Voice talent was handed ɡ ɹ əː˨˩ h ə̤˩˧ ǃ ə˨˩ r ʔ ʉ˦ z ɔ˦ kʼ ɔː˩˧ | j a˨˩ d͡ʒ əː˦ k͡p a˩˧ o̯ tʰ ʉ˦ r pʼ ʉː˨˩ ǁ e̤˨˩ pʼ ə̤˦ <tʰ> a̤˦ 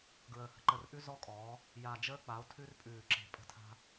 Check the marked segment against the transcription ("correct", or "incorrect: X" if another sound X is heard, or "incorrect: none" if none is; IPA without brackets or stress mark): correct